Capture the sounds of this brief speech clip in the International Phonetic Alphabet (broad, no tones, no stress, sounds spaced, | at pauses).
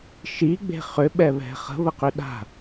ʃ i ɡ͡b e̤ χ ʏ ɓ ɛ β ɛ̤ χ ə̤ β ə q ʏ ɗ a̤